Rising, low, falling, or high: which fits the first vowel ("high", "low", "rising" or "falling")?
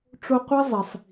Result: high